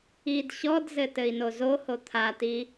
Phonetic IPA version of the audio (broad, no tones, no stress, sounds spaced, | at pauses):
i d ɕ ɔ d z ɘ t ɘ i̯ n o z o h o t̪ʰ a t i